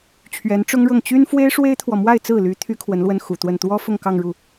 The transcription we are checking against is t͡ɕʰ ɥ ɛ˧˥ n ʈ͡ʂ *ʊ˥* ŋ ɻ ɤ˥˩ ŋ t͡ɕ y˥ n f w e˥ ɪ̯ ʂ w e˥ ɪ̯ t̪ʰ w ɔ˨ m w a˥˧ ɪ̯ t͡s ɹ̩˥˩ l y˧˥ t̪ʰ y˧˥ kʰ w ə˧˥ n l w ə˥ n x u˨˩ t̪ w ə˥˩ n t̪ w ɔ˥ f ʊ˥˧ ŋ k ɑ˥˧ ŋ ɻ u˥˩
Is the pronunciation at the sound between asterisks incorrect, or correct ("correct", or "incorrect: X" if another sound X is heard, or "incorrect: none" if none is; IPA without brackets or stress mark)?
correct